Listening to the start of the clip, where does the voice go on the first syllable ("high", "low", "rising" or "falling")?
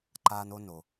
high